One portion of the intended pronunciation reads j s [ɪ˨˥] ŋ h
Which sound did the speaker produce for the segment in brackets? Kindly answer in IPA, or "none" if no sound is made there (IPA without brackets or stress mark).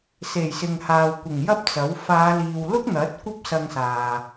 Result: ɪ˨